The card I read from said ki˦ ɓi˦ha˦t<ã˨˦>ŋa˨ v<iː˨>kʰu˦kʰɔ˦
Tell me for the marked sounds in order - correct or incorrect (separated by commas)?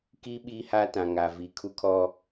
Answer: incorrect, correct